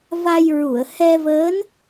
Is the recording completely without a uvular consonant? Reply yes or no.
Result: yes